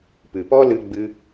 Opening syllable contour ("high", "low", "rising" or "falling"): low